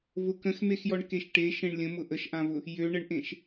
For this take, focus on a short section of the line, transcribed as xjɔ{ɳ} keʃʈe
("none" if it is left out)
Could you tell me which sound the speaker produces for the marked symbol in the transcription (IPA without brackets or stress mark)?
ɳ